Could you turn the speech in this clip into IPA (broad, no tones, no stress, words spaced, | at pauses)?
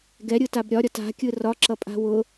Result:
ɡɛɾʲɯtab ɾʲɒɾʲɒt a̤kʲɯ rɒǁʌpʼa̤ wʊ